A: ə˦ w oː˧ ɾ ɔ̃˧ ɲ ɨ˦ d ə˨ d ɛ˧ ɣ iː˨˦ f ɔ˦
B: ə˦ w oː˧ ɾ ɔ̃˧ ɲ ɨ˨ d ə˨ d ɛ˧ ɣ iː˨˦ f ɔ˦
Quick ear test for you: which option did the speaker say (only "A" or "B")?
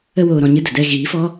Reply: A